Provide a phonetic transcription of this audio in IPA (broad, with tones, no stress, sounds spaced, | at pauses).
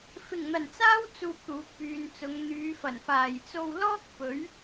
f ɪ˨˩ ŋ n̪ ɐ˨˩ n t͡s aː˥ w t͡s uː˧ p̚ t̪ uː˨˥ k̚ p yː˨ n t͡s ʊ˨˧ ŋ n̪ yː˨˧ f ɐ˨˩ n f aː˨˩ j t͡s o˧ w l ɔː˥ k̚ p ɵ˨˥ ɥ